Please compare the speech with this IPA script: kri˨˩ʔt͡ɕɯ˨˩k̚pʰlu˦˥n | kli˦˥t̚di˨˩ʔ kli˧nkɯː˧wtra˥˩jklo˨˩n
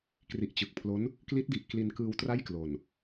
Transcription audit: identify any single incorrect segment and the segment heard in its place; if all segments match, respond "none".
u˦˥ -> o˦˥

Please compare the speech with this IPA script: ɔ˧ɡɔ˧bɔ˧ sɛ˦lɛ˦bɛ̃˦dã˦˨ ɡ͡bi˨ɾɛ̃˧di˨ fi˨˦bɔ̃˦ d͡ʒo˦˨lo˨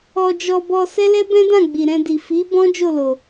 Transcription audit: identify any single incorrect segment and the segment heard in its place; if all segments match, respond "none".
ɡ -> d͡ʒ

